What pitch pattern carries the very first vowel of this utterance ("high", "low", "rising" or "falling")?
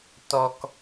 low